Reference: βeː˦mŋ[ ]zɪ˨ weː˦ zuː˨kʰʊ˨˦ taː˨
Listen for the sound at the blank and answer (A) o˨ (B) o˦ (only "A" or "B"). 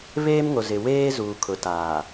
A